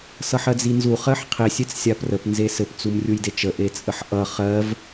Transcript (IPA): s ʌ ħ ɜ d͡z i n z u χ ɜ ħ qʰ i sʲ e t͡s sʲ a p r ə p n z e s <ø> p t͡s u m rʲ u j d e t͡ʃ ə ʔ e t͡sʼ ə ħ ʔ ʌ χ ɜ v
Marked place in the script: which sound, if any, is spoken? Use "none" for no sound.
ɘ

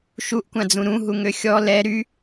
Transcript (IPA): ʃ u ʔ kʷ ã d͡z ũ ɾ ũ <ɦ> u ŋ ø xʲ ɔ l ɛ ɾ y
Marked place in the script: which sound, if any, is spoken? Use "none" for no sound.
ɦ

